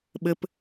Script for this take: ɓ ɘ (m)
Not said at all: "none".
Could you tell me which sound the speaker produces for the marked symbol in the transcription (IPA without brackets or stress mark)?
p